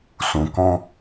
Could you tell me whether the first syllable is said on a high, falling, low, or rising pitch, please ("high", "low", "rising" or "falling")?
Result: low